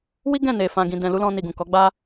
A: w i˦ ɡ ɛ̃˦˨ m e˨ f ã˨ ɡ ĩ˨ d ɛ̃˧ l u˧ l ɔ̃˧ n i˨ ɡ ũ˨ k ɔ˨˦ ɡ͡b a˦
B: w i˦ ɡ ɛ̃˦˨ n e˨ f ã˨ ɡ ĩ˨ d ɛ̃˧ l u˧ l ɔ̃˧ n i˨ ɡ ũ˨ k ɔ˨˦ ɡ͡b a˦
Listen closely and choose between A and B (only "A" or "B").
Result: B